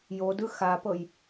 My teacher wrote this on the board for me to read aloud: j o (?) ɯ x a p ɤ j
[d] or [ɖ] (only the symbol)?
d